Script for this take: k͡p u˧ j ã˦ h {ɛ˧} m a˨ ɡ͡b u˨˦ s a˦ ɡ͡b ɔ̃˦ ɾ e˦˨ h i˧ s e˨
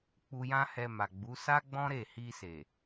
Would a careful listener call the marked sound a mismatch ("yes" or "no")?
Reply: no